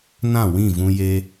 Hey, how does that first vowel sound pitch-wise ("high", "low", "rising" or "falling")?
falling